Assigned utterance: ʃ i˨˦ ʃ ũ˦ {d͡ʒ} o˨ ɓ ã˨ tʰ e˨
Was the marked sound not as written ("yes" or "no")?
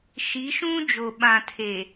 no